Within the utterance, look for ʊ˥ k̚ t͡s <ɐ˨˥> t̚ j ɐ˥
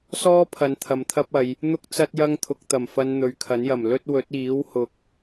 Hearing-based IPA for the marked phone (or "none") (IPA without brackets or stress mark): ɐ˥